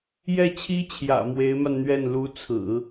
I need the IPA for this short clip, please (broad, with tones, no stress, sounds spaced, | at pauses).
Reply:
j ɛ˥˩ t͡ɕʰ i˥ t͡ɕʰ j ä̰˨˩ m w e˧˥ ɪ̯ m a˧ n n̪ ɥ ɛ˥˩ n l u˧˥ t͡sʰ ɹ̩˨˩˦